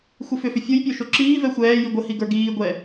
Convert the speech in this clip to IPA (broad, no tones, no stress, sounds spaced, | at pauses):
xʷ i f ʏ f ʏ fʲ o j pʲ o ʃ o ǁ iː v ɛ xʷ ɛː j i ɡʷ ə h i ɡ ə˞ ɡ iː ɡʷ ɛ